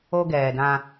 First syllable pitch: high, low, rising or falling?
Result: high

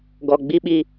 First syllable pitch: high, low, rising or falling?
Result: low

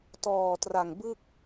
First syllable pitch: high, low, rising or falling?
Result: low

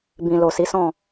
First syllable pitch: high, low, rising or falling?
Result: low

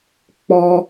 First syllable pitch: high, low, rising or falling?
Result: high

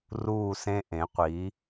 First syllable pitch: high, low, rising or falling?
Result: falling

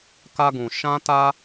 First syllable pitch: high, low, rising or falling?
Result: high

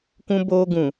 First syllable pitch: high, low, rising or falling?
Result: high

